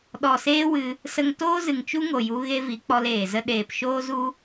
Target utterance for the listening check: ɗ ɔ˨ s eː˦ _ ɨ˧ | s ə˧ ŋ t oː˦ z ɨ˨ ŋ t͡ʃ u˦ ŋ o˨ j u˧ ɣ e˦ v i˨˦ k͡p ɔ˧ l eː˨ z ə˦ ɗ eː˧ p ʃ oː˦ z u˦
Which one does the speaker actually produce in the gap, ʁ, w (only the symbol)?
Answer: w